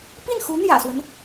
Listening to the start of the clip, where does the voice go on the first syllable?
falling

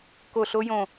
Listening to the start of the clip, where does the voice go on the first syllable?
falling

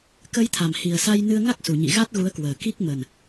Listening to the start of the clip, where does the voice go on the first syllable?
rising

